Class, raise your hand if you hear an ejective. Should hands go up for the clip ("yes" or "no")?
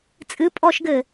yes